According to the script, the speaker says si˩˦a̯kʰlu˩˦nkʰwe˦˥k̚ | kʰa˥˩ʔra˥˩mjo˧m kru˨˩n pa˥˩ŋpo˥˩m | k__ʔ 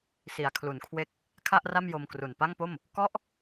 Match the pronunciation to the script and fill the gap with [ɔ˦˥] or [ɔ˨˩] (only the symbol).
ɔ˦˥